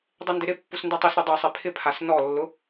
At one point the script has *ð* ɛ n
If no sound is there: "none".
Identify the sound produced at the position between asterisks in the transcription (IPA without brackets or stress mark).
dˤ